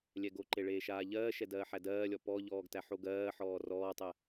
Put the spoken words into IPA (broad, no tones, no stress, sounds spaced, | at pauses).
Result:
lʲ ɛ ɡ o ǃ e ɭ eː ʃ aː ʎ ɜː ʃ ɛ d ɜː ħ æ d ɜː lʲ ɔ p ɔ ʎ ɔː ɡ t æ ħ o ɡ ɜː ħ ɔː r ɔː tˤ ɛ